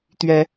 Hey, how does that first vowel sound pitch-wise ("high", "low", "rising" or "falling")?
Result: rising